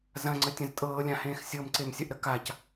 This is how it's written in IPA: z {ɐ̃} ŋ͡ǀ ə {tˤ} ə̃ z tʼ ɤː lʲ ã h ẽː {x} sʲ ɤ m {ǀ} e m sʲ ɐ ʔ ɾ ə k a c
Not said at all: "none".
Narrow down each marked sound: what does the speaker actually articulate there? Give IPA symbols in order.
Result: ɐ̃, tʲ, x, ǀ

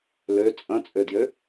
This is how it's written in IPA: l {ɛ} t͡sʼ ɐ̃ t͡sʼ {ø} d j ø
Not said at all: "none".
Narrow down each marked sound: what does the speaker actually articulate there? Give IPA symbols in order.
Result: ø, ø

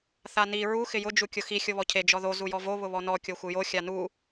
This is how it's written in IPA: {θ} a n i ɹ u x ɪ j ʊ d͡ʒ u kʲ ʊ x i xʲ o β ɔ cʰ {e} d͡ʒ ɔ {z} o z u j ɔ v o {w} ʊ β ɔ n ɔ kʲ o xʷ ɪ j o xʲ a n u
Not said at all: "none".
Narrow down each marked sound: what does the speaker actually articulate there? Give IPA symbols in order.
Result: θ, e, ð, β

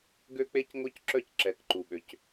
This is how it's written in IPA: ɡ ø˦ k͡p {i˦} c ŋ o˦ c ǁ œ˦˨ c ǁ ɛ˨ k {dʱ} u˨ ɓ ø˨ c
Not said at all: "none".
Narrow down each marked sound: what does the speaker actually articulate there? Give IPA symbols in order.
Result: e˦, ǃ

